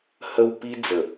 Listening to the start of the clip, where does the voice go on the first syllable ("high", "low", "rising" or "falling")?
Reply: low